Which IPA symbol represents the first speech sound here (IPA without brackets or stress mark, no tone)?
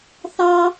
θ